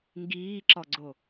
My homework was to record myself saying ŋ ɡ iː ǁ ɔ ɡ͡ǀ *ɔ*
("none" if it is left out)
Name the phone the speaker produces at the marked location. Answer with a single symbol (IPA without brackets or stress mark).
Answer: o